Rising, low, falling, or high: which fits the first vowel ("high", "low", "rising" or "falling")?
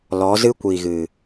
rising